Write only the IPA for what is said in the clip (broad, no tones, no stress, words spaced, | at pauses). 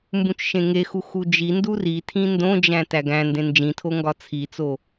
mbũt͡ʃʃẽŋexu xud͡ʒindu ritʰĩ ndõd͡ʒæ̃ tæɡæ̃ndẽ nd͡ʒĩtʰo ŋɡɒt͡sʰit͡so